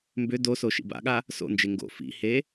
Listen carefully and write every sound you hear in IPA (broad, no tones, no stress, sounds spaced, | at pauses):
m b ʏ d o s o ʃ ḭ b a̰ ɠ a | s o̰ n d͡ʒ e ŋ ɡ o̰ f ḭ h e